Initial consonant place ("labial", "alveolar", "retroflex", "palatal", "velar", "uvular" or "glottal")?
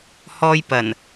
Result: glottal